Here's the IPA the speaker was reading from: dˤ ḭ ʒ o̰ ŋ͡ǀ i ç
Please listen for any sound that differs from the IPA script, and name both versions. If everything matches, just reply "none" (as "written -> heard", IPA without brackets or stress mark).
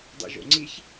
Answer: none